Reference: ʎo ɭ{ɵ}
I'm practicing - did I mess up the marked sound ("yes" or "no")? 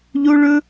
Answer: no